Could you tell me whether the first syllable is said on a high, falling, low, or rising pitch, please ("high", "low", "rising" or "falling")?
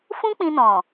high